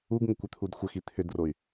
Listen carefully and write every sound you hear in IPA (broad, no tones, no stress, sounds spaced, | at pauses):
u ɡ ŋ ʏ kʷ ʏ t̪ʰ u d xʷ ə x i t̪ʰ ʏ d r o y̯